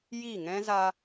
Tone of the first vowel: falling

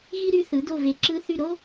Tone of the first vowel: high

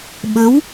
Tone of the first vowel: rising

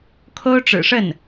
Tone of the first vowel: high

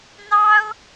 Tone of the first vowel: high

